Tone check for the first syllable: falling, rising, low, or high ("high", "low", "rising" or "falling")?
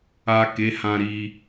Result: low